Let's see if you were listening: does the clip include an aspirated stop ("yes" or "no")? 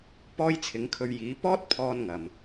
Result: yes